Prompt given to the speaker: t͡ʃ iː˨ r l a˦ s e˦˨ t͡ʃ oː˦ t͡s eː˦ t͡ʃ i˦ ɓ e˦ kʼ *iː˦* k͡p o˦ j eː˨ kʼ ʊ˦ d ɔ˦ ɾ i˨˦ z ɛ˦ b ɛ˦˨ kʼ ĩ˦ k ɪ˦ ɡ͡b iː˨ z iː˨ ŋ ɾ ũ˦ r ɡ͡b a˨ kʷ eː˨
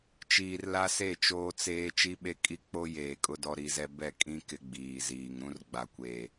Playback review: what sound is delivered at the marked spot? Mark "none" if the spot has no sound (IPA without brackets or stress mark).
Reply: i˦